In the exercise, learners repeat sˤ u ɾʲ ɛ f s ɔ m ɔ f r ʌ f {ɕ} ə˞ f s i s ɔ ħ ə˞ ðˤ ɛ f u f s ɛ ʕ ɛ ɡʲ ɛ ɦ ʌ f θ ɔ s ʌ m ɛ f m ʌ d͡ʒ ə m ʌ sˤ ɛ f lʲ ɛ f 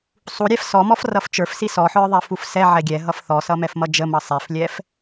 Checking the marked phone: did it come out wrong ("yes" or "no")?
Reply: yes